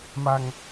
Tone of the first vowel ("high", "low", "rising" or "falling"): high